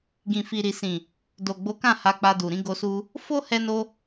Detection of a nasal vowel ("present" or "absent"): present